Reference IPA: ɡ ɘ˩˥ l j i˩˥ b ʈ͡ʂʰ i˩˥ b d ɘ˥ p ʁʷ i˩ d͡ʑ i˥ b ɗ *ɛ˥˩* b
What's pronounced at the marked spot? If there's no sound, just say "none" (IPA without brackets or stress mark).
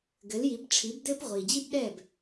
ɛ˥˩